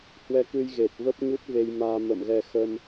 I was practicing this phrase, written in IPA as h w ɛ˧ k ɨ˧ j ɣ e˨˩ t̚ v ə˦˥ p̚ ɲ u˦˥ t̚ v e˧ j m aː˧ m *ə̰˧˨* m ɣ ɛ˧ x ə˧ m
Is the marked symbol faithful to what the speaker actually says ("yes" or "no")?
yes